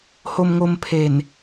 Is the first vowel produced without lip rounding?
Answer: no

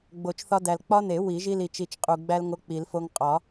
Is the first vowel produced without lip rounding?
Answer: no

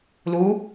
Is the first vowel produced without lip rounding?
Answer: no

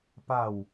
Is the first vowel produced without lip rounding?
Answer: yes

